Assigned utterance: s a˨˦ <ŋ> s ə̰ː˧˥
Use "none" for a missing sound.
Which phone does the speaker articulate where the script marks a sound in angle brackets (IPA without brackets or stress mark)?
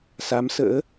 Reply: m